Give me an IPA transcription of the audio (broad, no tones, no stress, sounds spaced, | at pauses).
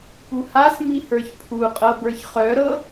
p u h a s m i h ə˞ ç pʰ u qʼ ɤ b ə˞ ç χ œ ɾ ɤ